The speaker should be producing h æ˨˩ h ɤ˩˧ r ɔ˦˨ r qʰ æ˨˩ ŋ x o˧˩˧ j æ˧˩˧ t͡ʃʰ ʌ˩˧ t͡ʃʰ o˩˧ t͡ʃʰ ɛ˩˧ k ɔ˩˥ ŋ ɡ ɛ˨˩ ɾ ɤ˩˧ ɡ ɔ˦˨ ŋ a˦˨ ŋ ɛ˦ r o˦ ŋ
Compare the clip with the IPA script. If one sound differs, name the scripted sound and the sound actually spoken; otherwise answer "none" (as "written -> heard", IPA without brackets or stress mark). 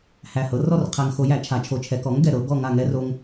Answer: ʌ˩˧ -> a˩˧